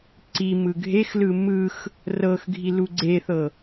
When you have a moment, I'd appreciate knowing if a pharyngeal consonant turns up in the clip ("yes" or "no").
no